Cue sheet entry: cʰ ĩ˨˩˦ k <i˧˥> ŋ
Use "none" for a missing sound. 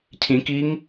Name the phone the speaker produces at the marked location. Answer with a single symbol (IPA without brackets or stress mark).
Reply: i˧˥